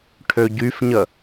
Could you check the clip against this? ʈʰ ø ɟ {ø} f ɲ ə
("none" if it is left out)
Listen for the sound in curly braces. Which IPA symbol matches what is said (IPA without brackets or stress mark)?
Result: y